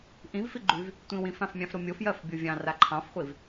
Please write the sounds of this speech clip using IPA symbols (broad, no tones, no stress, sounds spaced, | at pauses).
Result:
ʔ ĩ v f i ɡ͡ǃ y v | tʷ ĩ w ĩ f ã f mʲ ɑ̃ f ɾ o mʲ o f j ɜ f bʲ o vʲ ɑ̃ r a ǃʰ ɑ̃ f χʷ i v